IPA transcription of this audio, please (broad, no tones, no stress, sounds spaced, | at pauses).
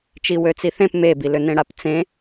t͡ʃ i w ø t͡s i θ ẽ p m e b i l ø n̪ ẽ ɽ a p t͡s ẽ